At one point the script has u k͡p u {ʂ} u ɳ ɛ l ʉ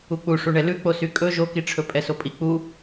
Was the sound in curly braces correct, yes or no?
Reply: yes